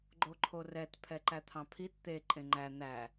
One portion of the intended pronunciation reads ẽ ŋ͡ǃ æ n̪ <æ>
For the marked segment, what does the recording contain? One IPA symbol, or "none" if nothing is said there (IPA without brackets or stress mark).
æ